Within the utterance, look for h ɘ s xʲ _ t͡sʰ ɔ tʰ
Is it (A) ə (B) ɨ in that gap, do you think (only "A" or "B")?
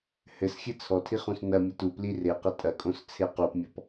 B